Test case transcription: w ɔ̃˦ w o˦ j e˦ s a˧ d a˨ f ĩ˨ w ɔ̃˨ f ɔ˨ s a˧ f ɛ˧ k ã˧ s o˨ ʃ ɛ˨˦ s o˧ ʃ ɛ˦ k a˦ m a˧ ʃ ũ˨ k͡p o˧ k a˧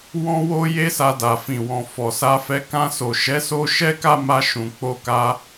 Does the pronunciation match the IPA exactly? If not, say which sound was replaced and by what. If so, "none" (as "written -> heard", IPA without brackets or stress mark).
none